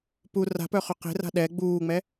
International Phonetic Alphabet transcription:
p u r a̤ p œ χ ø q e̤ r a̤ ɗ ɛ ɡ͡b uː ŋ͡m ɛ

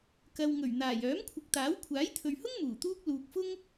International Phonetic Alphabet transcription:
k ɐ˨ w ŋ ɵ˨˩ ɥ n̪ aː˨˩ j œː˨˥ m kʷʰ ɪ˨ k̚ t̪ aː˨˥ w kʷʰ aː˨˥ j t̪ʰ ɵ˨ ɥ h ʊ˥ ŋ m uː˨˩ t̪ uː˥ k̚ l uː˨ k̚ f ʊ˥ ŋ

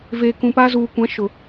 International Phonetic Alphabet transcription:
v eː˨ k ũ˨ p aː˦ z uː˨ kʷ ã˨˦ ʃ ʊ˨

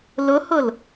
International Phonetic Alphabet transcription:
l ʊ h ʊ l

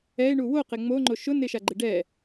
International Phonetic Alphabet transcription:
ɛ ɪ̯ ɳ u w o q ɪ ŋ͡m o ŋ͡ǃ o ʃ ʊ n ɪ ʃ a ɡ͡ǃ ɪ ɖ ɛ

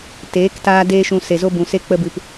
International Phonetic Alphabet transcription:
t eː˨˦ k t aː˦ d eː˦ ʃ ũ˧ s e˨ z o˦ b ũ˨ s e˦ k͡p ə˧ b ɨ˨ p

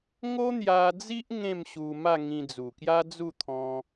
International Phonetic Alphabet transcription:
ŋ o˦ n̪ j a˧ d͡z i˦ ʔ ŋ ẽ˥˧ m ɕ u˧ m a˥˧ ŋ ĩ˧ d͡z u˨˩ k j a˦ d͡z u˥˧ t̪ʰ ɔ̃˧

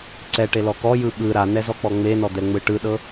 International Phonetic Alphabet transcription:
ǀ ɛ ʈ e l ɔ k ɔ j ɯ ɓ ɯ ɾ a n ɛ z ɔ k͡p ɔ ŋ͡m e n ɔ d̪ ɛ ŋ͡m ɯ ʈ ɯ ɗ ɤ

